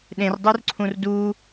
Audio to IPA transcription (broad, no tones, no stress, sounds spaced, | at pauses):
ɗ ẽ r dˤ u r ǀʰ ũ r d u